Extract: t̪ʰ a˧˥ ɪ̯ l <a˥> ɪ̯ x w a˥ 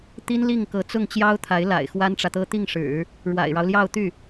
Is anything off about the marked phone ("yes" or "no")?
yes